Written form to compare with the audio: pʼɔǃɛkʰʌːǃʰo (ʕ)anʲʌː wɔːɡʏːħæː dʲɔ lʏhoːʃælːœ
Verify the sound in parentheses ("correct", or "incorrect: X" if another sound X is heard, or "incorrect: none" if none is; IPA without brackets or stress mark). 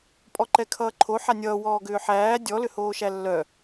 incorrect: ħ